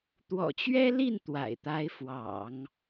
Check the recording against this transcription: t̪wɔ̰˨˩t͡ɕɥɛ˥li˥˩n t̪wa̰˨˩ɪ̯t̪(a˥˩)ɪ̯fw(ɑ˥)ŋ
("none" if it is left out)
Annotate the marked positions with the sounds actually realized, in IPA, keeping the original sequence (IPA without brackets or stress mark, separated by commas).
a˧˥, ɑ̰˨˩˦